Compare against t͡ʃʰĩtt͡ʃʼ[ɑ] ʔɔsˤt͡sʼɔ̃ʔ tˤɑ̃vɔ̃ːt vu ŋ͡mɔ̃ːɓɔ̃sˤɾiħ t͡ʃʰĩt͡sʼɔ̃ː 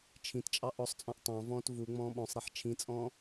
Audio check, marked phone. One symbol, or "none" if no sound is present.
ɑ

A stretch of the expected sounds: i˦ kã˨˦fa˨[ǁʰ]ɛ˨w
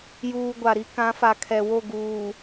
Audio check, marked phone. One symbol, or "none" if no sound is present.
kʰ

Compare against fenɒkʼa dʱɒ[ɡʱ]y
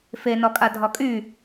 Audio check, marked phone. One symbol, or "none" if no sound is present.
kʼ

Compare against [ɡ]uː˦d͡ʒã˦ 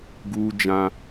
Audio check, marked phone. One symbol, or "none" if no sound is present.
ɡ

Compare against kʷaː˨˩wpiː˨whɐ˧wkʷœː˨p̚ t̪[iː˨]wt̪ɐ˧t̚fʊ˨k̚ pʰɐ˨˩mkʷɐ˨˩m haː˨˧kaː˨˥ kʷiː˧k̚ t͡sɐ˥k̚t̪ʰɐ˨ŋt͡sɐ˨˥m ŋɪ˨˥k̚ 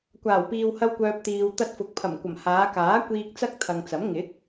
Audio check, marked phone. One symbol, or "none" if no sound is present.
iː˨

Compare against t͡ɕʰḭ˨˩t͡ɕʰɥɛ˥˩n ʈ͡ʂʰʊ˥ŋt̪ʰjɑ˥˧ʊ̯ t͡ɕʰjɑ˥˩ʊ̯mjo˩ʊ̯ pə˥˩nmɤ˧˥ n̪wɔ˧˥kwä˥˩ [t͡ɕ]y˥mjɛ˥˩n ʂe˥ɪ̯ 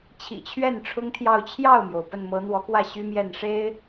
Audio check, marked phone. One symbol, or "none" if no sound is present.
ɕ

